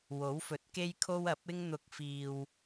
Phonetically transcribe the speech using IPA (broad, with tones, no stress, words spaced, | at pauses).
wo˨˥wfɵ˨˥t̚ke˥jkʰo˥w ɐ˨˥p̚ɪ˥ŋ n̪ʊ˧k̚fiː˧w